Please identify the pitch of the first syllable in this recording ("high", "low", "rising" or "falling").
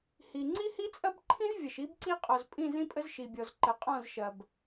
low